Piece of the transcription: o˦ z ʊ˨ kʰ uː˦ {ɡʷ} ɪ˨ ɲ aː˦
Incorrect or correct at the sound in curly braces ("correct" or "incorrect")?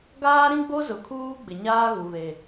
incorrect